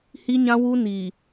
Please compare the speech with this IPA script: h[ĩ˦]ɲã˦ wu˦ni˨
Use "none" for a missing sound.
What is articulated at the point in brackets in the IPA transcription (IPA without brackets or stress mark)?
i˦